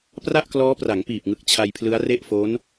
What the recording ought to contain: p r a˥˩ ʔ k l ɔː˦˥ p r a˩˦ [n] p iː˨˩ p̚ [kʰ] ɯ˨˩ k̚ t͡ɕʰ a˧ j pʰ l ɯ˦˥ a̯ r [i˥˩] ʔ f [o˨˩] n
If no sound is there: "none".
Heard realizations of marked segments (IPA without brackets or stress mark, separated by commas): ŋ, ŋ, e˥˩, o˦˥